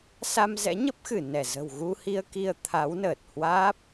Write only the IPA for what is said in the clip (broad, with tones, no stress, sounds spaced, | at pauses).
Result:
s a˧ m z ɛ̰˧˥ ɲ ə˦˥ p̚ x ɨ˧˩ n ɛ˧˩ z ə̤˨˩ w ɣ u˧ h i˧ ə̯ k i˧ ə̯ t̪ʰ a˨˦ w n əː˨˩ t̚ h w aː˦˥ p̚